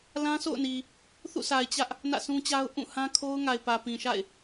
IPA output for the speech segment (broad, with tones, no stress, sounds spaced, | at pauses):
l ã˦ s o̰˦˨ ʊ̯ n i˨ | θ ṵ˦˨ s a˨ ɪ̯ t͡ɕ ä˦ ʔ | n ä̰˦˨ s ũ˦ t͡ɕ a˦ ʊ̯ ʔ ũ˦˨ h ã˦ kʰ o˦ ʊ̯ ŋ a˨ ɪ̯ p ä˨ p ĩ˨ ʃ a̰˦˨ ɪ̯